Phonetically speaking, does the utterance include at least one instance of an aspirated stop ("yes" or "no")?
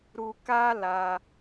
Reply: no